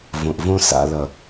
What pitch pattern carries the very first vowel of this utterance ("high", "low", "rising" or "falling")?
low